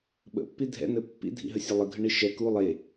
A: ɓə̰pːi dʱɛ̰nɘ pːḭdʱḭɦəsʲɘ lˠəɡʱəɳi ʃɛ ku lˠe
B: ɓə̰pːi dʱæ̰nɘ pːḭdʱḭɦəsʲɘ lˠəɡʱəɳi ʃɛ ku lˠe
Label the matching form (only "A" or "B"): A